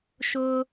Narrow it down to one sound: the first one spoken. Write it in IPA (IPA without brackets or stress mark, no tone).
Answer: ʃ